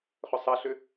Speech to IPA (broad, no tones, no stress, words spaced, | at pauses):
χʏsˤɐɬʏ